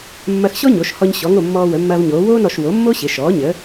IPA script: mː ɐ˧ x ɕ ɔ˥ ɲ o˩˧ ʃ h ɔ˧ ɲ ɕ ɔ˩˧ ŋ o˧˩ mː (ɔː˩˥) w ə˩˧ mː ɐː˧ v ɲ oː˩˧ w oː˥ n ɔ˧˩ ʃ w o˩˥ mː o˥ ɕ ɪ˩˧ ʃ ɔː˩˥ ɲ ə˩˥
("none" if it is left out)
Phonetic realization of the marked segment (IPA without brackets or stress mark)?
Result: ɔː˧